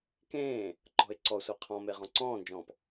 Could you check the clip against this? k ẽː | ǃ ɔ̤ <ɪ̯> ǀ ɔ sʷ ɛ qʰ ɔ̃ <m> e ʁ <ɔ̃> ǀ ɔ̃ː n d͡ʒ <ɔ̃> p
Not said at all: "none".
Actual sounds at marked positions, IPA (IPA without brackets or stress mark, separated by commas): ɪ̯, m, ɔ̃, ɔ̃ː